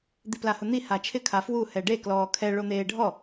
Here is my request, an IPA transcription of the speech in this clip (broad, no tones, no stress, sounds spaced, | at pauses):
d̪ i p l a h ʊ n̪ i h a t͡ʃʰ ɪ kʰ a f w u h ɛ ɖ e k l ɔː kʰ ɛ ɭ o n̪ eː ɖʱ ɔ